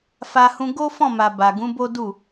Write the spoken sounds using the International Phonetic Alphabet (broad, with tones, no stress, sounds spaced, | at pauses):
f a˧ h ũ˧ ɡ o˦ f ɔ̃˦˨ m a˨ b a˨ ɡ ũ˨˦ b o˦ d u˦˨